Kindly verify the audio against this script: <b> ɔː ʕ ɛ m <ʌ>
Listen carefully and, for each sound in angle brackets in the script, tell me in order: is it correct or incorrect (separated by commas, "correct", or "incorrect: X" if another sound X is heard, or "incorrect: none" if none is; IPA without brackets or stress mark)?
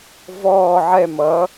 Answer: incorrect: v, correct